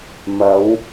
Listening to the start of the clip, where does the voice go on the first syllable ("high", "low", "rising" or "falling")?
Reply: rising